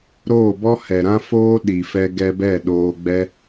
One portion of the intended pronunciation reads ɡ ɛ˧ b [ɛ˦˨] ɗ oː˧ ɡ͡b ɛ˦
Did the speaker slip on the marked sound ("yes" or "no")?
no